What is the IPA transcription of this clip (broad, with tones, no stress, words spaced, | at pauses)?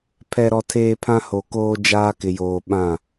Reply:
pʰɛ˨ɾɔ˨tʰeː˨ pʰã˦ho˨koː˦ d͡ʒaː˦kɪ˨joː˨ ɓã˦˨